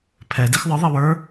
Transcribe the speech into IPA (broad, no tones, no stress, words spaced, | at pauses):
pʰɛ dixðˤɯ ðˤiwə˞